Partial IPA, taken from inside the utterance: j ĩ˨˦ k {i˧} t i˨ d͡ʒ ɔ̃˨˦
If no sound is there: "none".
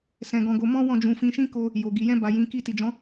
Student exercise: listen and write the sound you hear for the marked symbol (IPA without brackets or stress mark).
i˧